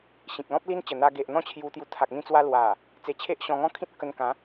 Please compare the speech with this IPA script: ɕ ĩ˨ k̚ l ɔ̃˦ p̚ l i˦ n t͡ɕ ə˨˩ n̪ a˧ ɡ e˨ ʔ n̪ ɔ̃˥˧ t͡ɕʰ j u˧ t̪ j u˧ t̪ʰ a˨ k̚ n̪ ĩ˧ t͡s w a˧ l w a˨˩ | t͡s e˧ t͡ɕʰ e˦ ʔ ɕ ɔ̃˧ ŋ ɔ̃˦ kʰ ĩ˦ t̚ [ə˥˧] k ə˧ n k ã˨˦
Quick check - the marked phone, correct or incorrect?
correct